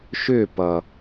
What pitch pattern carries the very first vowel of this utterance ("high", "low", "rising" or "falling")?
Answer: falling